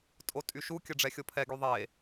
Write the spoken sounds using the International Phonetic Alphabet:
tʼ o tʼ y ʃ u kʲ ə ɖ͡ʐ ɛ xʲ o pʰ ɛ ɡ y ðˤ e

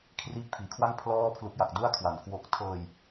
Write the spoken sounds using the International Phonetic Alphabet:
kʰ r iː˦˥ k̚ pʰ iː˨˩ kʰ w a˥˩ ŋ pʰ l ɔː˥˩ pʰ l u˦˥ k̚ j a˨˩ k̚ d u˥˩ a̯ kʰ w a˨˩ n k w o˦˥ k̚ tʰ ɤː˧ j

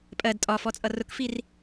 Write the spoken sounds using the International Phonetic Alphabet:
pʼ ɜ d tʼ ɒ f ɔ t͡sʼ ʌ r ʊ k f i r

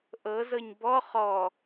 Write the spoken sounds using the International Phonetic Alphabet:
ʔ ɤ z ɤ ɲ b ɔ χ ɔ

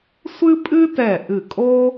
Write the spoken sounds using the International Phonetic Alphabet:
sʷ ɨ˥ pʼ ɨ˥ t ɛ˧˩ ʔ ɨ˧˩ kʼ o˥

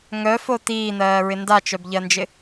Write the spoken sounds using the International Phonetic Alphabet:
ŋ œ f o t iː n̪ ɜː ɹ ɪ n d a t͡ʃ œ b ʎ ɜ n d͡ʒ ɪ

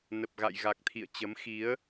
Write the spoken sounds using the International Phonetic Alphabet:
n ə˨˩ p̚ ɣ a̰˧˨ j ɣ a˨˩ k̚ t̪ʰ ḭ˧˨ ə̯ t͡ɕ ə˨˦ m x i˨˦ ə̯

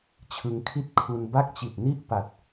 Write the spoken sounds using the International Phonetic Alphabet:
t͡ɕʰ ɯ˧ ŋ kʰ i˥˩ t̚ kʰ u˧ n b a˥˩ k̚ t͡ɕ i˨˩ t̚ n i˥˩ ʔ p a˨˩ t̚

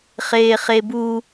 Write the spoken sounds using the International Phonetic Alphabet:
χ eː χ e b u

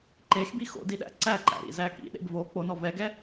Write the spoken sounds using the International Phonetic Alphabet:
ǃ e x b i x o̰ d i ɗ æ̰ ǀ æ ǃ æ̰ ɾ ḭ z æ k ḭ ɗ ḛ b v o k͡p o n ɔ v ɛ ɡ ɛ

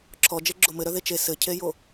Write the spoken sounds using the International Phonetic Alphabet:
ǁʰ ɔ d͡ʒ e ɡ͡ǁ o m ɘ ɾ œ ð e t͡ʃ e s ɘ cʰ e j o

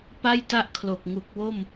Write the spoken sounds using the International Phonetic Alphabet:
p a˥˩ j t a˥˩ ʔ kʰ l o˨˩ k̚ ŋ u˨˩ k̚ w o˥˩ m

